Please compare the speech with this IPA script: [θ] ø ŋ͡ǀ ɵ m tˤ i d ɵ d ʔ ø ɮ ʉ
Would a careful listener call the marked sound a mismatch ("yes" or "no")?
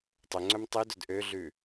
yes